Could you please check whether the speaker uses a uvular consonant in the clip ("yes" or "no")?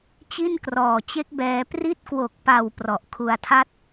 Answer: no